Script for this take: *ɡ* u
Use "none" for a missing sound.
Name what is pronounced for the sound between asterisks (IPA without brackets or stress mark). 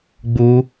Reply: ɡ͡b